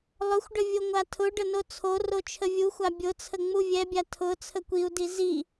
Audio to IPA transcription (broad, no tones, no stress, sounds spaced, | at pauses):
lˠ ʊ xʷ ɖ ə vʲ o ŋʷ a tʰ ʊ ɖ ə n o t͡sʰ o r o t͡ʃʰ ə vʲ u xʷ a bʲ ʊ t͡sʰ ə ŋ͡m u vʲ ɛ bʲ a tʰ ʊ t͡sʰ ə kʷ i u̯ d i z i